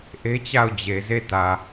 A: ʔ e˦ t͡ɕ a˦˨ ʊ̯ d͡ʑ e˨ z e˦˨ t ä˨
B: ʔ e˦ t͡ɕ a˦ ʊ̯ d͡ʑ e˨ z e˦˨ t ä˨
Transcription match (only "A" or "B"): A